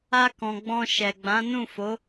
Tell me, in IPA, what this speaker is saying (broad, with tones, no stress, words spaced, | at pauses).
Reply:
a˧kɔ̃˨ ɡ͡bɔ̃˧ ʃɛ˨ɡ͡bã˨˦ nũ˦˨fo˨˦